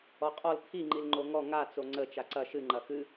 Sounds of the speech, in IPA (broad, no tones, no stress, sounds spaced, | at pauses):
ɔ qʼ ɔ l t̪ʰ i ŋ͡ǃ i l ŋ͡ǃ o ŋ ɔ ŋ a t͡s o ŋ͡ǀ ə t͡ʃ a ǀ ɐ ʃ ɨ ŋ͡ǃ ɐ x ɨ